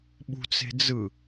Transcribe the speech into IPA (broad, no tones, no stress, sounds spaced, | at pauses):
ɓ ṳ t͡s e̤ d͡z ɯ